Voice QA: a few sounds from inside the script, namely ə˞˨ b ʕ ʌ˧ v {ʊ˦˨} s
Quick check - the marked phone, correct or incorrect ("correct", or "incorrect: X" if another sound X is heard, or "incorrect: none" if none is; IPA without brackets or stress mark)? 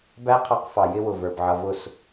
correct